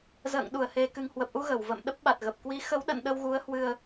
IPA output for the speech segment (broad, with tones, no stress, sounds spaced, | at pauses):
z ə̰ː˧˨ ŋ ɗ u˧˩ ə̯ h e˨˩ k ɨ˨˩ ŋ h w ə˨˩ p̚ ʔ u˧ ɣ ə˧˩ w v ə̰˧˨ m ɗ ə˦˥ p̚ ɓ a˨˩ t̚ ɣ ə˨˩ p̚ k w i˨˦ x ə˨˦ w ɗ ə̰˧˨ n ɗ ə˧ w ɣ u˨˦ ə̯ h w ɨ˧ ə̯